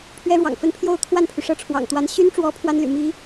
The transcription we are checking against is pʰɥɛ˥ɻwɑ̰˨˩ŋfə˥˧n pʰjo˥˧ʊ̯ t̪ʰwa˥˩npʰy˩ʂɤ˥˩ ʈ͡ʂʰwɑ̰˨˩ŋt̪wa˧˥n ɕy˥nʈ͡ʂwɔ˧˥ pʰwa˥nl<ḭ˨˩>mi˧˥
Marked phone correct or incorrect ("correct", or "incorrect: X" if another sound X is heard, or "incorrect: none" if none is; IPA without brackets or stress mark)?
incorrect: y̰˨˩